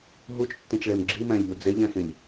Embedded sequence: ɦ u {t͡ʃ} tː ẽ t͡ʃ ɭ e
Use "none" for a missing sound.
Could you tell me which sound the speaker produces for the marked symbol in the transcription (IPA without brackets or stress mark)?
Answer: t͡ʃ